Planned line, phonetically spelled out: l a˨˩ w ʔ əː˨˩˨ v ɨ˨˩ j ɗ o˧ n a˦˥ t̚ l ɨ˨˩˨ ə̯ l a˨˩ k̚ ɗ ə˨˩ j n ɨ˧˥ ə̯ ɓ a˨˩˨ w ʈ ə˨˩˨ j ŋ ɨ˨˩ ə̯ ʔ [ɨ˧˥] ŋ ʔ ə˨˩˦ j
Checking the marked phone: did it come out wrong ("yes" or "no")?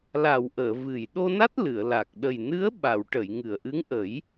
no